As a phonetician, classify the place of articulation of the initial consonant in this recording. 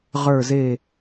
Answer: uvular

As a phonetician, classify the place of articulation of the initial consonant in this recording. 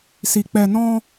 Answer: alveolar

